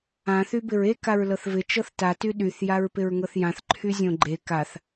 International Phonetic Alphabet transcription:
ã θ y b ɪ ɹ e k a ɹ l ɤ θ v ɪ t͡ʃ ɤ θ t a t y ɗ y θ j a ɹ p ɪ ɹ ŋ ɤ θ j ã θ ǃʰ y zʲ õ ɡ͡ǃ e k a θ

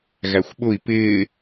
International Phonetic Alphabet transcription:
ɣ æ xʷ ɓ ʊ i̯ p ɪː

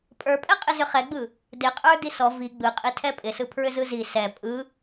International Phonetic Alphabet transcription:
pʼ ə˞ pʼ ɛ qʼ ɪ z ʏ χ ɛ ɡ͡b ɯ | d ɪ qʼ ə˞ d i s ɔ v i ɡ͡b ɯ qʼ i tʰ ɛ pʼ ɪ s ɯ pʰ ɹ ʏ z ɯ z i s ɛ pʼ ɯ

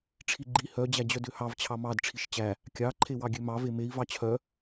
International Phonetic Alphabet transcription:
ʈ͡ʂʰ i ɡ͡ǃ i h œ d͡ʑ æ d͡ʑ œ d ø h ɑ v t͡ɕʰ ɑ m ɑ d ʈ͡ʂʰ i ʃ t͡ɕ æ | kʲ ɑ ǃʰ e w ɑ ɡʲ ø m ɑ v e m e i̯ v ɑ t͡ɕʰ œ

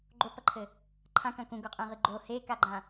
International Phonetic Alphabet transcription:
ɡ͡ǃ o p ɐ ǃʰ ɘ | ǃʰ ã k ɐ̃ k ũ ɡ o qʼ ẽ ʁ ɨ ɡ͡ǃ o h e k a ɡ͡ǃ ã

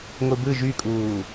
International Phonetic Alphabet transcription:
ŋʷ ɯ b ɯ ʒ y kʼ uː

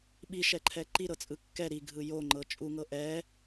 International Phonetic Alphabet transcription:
ɓ i ʃ ɛ ǃʰ ɛ ǃ i ɾ ɤ t͡sʼ ɯ kː ɛ ɾ i ɡʱ ɯ j o ŋ͡ǃ ɤ t͡ʃʼ u ŋ ɤ ʔ ɛ

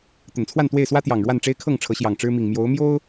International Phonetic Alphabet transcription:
t̪ ə˨˩ n t͡sʰ w a˥˨ n t̪ w e˥˨ ɪ̯ s w ä˦ t̪ j ɑ˨˩ ŋ ɻ w a˥˨ n ʈ͡ʂ e˦ ɪ̯ kʰ ɤ˥˨ ŋ ʈ͡ʂʰ ɤ˨˦ ɕ j ɑ˨˩ ŋ ʈ͡ʂ ɻ̩˦ m i˨˩ ŋ m j o˨˦ ʊ̯ m j o˦ ʊ̯

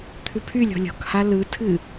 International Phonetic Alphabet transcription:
t̪ʰ ʉ pʰ y lʲ ɔ̤ lʲ ɔ̤ k h a l ɯ tʰ ɨ

